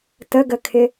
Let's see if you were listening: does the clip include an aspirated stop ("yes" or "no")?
yes